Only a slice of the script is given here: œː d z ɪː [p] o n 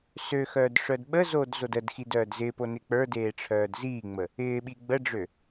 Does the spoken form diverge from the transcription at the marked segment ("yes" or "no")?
no